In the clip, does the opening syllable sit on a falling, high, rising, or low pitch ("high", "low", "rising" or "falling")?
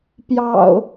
low